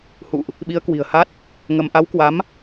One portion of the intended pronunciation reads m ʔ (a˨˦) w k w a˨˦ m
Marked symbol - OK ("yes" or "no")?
yes